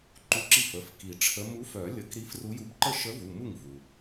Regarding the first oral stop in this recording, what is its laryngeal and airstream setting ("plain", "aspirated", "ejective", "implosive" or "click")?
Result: click